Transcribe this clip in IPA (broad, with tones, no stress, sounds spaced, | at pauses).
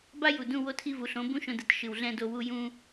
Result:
b a˦ j u˨ d ũ˧ w o˧ tʰ i˧ v u˨ ɬ õ˨˦ b ũ˦ ʃ õ˧ d ɯ˨ t ʃ ɯ˨ w ɮ ɛ̃˧ d o˧ w u˦ j ũ˦